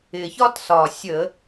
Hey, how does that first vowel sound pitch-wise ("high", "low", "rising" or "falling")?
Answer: low